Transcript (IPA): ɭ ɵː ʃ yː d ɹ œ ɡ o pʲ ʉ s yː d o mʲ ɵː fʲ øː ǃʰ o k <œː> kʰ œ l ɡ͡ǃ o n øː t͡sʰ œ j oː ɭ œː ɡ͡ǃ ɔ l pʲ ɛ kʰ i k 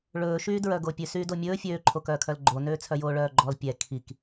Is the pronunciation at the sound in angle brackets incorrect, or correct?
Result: correct